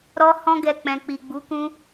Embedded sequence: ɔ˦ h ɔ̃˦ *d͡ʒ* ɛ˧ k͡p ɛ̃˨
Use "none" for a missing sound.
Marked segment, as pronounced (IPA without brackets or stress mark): ɡ